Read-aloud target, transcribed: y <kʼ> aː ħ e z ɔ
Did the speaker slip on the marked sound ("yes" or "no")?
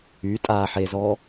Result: yes